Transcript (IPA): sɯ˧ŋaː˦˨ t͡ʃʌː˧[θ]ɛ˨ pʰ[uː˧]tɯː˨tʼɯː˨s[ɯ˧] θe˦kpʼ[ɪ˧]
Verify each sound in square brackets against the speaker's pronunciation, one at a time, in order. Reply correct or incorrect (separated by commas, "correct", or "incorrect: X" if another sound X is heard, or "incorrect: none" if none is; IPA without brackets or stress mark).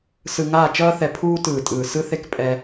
correct, correct, correct, incorrect: ɛ˧